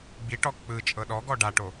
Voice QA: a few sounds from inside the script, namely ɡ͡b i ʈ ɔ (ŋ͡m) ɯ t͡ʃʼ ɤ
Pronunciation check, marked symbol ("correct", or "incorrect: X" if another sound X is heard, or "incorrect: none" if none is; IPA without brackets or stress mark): incorrect: k͡p